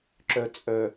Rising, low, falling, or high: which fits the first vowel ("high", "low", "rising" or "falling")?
low